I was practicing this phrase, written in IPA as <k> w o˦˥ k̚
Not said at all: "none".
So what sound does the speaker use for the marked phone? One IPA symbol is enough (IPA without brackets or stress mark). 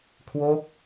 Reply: kʰ